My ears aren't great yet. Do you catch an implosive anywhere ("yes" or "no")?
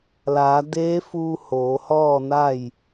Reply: no